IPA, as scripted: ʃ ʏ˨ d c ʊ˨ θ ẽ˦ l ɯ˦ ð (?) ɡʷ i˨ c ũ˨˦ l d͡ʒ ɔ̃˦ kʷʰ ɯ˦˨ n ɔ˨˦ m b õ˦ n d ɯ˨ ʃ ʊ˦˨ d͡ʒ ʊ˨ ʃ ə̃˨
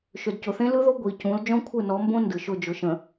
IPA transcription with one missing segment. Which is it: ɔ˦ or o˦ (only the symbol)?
o˦